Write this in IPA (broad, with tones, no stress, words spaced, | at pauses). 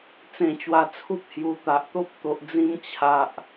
t͡sẽ˧t͡ɕwa˧t͡sʰu˦p̚ hju˨˩ t̪a˨ʔt̪o˦p̚ t̪o˨ʔd͡zĩ˧m t͡ɕʰa˨ʔ